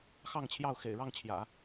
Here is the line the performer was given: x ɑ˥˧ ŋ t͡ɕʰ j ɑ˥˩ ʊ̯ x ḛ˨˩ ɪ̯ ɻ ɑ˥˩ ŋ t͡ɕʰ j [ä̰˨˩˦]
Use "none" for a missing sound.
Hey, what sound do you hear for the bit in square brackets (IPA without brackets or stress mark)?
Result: ä̰˨˩˦